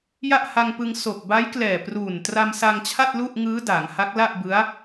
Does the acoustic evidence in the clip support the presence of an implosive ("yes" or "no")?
no